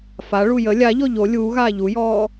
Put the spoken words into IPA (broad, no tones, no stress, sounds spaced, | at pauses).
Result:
f a ɭ u j ə lʲ a ʎ ɔ ʎ o lʲ uː ɣ aː ʎ u j ɔː